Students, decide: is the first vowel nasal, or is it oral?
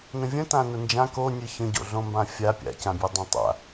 nasal